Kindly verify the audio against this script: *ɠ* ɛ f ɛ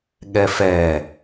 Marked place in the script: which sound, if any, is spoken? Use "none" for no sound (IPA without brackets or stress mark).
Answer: ɠ